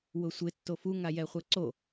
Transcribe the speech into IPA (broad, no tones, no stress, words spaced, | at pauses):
wʊsʷɪ tːofuŋajɛ χʷɛǀo